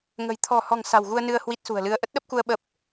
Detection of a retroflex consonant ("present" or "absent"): absent